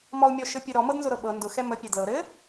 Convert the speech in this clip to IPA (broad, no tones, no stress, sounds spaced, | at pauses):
m ɔ u̯ mʲ ɔ ʃ ɘ pʲ ɘ ɾ ɔ m ɤ d n z ʊ ɾ ɤ ɓ ɤ n d ʊ x ɛ m ə pʲ ɛ d l ɤ ɾ ɘ